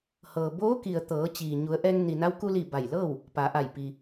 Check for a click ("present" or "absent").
absent